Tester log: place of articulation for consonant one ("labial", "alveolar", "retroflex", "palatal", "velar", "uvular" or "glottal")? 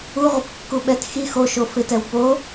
uvular